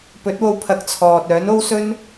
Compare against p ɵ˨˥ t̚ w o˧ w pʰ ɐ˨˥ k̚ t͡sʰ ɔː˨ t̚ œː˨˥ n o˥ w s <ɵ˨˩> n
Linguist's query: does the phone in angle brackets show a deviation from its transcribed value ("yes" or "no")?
yes